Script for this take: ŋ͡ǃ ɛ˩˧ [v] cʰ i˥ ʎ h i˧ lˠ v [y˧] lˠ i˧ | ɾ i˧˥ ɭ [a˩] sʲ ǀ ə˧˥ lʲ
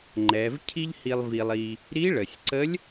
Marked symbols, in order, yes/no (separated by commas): yes, no, no